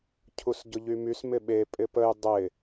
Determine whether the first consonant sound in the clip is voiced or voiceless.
voiceless